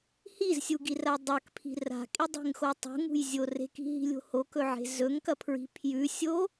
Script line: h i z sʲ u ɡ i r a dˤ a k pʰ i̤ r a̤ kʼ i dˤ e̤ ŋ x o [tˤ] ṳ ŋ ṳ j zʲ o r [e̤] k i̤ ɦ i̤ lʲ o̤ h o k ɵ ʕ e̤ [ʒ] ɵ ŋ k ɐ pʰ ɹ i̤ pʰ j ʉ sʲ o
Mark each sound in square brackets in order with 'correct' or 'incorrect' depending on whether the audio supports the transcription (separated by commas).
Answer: correct, correct, incorrect